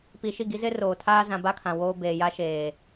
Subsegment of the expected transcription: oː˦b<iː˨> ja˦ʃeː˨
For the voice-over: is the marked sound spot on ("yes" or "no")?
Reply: no